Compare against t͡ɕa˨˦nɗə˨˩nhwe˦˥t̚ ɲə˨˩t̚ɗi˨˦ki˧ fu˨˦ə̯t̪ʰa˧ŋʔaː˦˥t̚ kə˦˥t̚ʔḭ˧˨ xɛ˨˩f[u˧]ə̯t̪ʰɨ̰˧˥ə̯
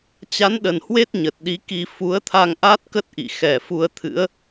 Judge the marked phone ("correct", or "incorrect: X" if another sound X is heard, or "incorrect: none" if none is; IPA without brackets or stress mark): correct